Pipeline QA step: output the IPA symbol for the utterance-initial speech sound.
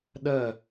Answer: ɗ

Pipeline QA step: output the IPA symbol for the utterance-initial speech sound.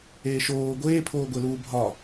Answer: eː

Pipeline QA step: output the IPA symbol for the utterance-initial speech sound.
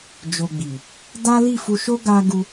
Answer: d͡ʒ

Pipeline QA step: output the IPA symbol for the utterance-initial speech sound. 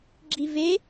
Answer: ɡ͡ǁ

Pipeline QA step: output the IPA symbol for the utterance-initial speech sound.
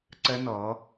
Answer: ǀ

